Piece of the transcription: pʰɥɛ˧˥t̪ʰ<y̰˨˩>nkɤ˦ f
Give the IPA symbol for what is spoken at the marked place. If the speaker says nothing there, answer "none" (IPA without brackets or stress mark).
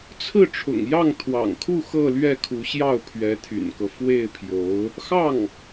y̰˨˩